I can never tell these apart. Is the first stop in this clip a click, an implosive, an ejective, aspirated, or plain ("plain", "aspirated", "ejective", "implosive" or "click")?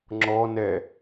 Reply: click